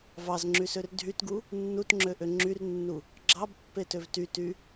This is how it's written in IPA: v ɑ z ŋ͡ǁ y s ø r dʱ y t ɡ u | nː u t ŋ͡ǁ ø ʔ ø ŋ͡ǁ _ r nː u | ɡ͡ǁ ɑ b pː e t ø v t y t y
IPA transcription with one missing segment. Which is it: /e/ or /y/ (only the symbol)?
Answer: y